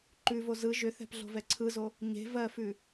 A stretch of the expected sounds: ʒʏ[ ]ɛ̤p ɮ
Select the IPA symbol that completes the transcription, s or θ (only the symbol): θ